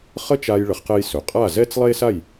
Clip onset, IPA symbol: χ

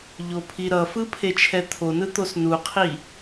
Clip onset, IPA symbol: ʎ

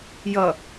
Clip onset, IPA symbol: j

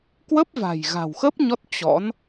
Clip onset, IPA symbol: k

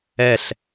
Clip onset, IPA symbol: ɛ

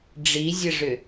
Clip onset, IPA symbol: ɖ͡ʐ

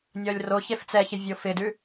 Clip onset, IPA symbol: nʲ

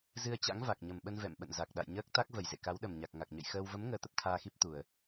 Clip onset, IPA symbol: z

